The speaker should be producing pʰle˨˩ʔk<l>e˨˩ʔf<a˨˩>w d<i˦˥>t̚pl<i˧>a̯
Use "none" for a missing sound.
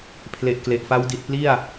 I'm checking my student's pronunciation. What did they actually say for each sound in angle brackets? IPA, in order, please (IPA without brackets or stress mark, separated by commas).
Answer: l, a˦˥, i˨˩, i˥˩